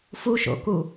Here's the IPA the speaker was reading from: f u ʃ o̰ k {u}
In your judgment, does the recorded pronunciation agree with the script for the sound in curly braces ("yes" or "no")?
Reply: yes